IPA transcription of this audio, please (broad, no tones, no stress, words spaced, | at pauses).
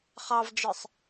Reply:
χɑvd͡ʒə˞sˤ